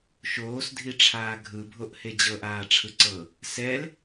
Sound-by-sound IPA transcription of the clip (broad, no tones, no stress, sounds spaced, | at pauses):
ʃ oː s dʱ i ʈ͡ʂʰ aː ɡʱ ɯ bʱ o ʔ h e d͡ʑ ɤ ʔ aː ʈ͡ʂʰ ɯ ǀ ɤ | s ɛ l